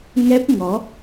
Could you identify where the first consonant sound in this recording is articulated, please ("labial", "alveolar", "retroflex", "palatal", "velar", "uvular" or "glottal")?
velar